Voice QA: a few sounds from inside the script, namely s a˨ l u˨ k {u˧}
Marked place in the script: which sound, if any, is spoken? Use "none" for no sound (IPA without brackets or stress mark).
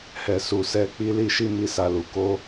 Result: o˧